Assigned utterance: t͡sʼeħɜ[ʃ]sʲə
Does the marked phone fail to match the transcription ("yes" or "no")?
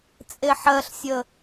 yes